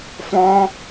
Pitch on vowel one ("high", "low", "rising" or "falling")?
high